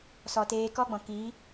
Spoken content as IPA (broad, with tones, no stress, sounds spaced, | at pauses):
s ɔ˨ t eː˧ k ɔ˦ ɡ͡b ɔ̃˨ k iː˨˦